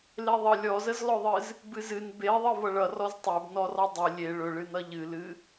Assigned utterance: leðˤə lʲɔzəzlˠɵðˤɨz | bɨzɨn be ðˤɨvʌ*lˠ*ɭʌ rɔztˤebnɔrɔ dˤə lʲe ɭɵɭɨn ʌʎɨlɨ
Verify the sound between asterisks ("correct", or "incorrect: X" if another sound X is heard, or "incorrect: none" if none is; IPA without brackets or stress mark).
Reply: incorrect: none